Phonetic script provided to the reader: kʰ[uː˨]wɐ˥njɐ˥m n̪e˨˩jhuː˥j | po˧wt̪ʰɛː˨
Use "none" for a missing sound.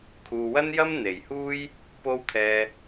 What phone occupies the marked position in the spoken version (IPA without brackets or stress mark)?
uː˨